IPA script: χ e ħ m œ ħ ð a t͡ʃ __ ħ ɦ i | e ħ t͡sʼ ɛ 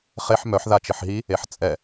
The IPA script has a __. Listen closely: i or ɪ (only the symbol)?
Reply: ɪ